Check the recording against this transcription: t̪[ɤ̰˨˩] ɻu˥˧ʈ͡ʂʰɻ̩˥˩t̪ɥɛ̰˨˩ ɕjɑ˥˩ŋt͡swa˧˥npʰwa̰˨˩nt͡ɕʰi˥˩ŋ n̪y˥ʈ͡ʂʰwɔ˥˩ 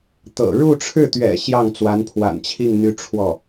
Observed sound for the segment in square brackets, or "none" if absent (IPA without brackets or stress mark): ɤ̰˨˩